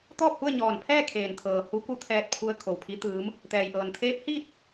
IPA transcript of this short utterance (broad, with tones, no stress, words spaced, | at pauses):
t̪ɔː˥˨p̚hu˥˨ə̯ɲɔː˧˩n pʰɛː˥˨kʰeː˩nt̪ʰɤː˩ hu˧˥ku˧˥t̪ʰɛː˧t̚pʰu˧ə̯ kʰo˩wpʰi˧˥t̪ɯː˧˥m | t̪ɛː˩jʔɤː˩n t̪ʰeː˧˥p̚hiː˥˨t̚